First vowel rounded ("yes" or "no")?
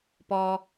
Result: yes